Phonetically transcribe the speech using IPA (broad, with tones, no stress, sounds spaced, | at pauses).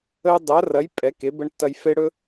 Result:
ə˥ j dˤ ɐ˧˥ r ɐ˧˥ j pʼ ɛ˧˥ k e˧˥ b ə˥ ɳ tː ɐ˥ j f e˥ ɽ ɵ˥